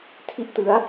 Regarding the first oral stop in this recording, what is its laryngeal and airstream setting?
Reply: aspirated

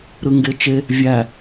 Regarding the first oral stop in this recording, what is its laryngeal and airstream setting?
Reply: plain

